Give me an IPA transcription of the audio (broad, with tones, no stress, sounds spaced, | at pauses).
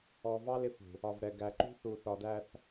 ɔ˨ v ɑ˦ l ɪ˦ f ṳ˨ | ɒ˨ v ɾ ɛ˨ ɡ æ˨ ǃ ṳ˦ θ u˨ θ ɒ˨ d æ˨ θ